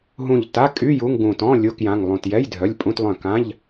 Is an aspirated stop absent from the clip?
yes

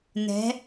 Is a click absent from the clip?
yes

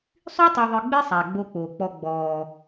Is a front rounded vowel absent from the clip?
no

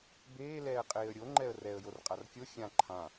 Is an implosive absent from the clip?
yes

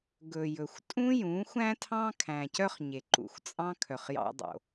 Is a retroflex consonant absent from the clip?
yes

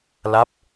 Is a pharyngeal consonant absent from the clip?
yes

